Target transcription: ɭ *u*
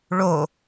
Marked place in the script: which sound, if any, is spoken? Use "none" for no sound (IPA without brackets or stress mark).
o